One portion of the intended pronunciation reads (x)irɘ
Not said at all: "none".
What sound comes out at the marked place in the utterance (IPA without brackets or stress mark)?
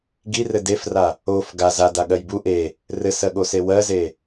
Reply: ɡ